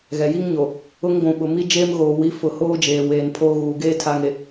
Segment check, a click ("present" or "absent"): absent